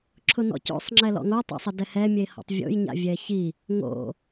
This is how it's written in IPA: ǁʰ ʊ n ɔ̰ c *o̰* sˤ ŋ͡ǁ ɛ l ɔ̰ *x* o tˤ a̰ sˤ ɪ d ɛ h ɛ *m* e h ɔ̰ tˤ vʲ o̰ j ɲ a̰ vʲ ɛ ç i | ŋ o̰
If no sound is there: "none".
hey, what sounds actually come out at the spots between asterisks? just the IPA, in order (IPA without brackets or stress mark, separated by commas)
o̰, ŋ, mʲ